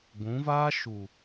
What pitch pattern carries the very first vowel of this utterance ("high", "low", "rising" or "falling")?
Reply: rising